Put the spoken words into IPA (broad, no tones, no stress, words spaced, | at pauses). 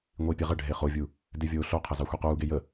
ŋʷipʲe ʁə ɖʱeχovʲu | devʲoːɬoqʰə zɑxʷequːɡe jə